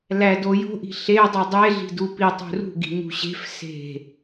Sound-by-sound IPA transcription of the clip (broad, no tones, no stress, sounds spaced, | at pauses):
l æ d o j o̤ ʔ i̤ ɬ e dˤ u dˤ e ɮ i̤ d u p i tˤ ṳ r ṳ ɡ i̤ ɲ ṳ ɕ e̤ f s e̤